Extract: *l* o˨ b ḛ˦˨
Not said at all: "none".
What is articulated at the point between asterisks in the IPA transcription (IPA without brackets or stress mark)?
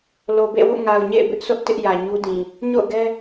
l